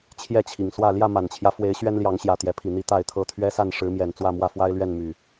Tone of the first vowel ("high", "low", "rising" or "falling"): falling